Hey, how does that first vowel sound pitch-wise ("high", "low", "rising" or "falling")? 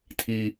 high